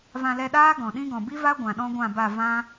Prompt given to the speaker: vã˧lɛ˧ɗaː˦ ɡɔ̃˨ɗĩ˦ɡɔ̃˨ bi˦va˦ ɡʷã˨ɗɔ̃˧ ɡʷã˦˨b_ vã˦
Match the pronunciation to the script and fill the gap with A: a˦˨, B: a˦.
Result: A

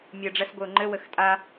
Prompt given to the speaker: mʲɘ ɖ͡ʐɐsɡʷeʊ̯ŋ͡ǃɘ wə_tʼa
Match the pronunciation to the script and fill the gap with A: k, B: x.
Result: B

